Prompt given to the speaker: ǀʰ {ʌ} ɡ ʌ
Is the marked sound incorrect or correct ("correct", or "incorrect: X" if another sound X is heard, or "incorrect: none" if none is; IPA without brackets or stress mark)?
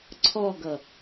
incorrect: ɔ